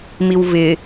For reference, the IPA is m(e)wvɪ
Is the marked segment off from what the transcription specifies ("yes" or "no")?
yes